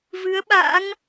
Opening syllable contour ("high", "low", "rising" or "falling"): rising